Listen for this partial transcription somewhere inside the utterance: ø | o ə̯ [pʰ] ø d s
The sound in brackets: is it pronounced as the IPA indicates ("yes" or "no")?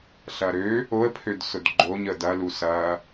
yes